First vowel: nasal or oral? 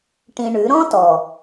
nasal